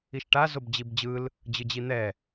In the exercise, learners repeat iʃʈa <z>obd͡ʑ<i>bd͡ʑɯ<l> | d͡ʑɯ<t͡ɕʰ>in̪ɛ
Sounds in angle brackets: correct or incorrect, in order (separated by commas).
correct, correct, correct, incorrect